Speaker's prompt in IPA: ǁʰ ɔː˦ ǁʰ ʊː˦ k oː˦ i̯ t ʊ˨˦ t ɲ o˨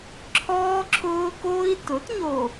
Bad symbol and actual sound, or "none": none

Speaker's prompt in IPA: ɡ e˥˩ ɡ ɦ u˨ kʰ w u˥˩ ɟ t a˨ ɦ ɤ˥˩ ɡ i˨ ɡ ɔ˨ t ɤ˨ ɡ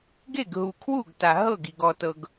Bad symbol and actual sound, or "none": ɟ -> ɡ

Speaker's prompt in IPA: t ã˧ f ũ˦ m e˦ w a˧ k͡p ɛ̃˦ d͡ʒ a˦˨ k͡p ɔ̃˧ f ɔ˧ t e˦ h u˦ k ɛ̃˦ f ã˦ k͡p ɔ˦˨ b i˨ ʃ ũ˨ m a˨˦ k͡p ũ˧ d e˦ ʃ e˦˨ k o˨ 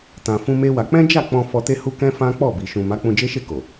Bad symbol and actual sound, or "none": d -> d͡ʒ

